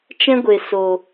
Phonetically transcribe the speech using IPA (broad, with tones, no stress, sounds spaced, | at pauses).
t͡ʃ ɛ̃˦ ɡʷ e˨ s o˨